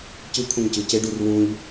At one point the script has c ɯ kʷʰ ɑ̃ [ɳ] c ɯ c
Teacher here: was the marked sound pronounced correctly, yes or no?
no